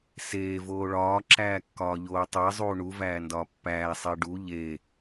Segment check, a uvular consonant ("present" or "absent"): absent